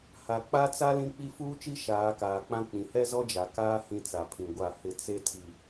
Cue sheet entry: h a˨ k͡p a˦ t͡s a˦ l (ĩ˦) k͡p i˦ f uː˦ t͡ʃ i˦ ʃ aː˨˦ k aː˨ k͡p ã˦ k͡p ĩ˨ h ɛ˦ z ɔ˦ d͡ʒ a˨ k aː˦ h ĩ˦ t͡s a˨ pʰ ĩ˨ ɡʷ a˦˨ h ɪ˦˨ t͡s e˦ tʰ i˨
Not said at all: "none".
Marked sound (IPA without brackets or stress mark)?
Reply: ĩ˦